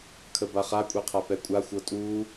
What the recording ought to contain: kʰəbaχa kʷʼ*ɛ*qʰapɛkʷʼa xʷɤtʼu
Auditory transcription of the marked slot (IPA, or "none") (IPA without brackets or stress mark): ɛ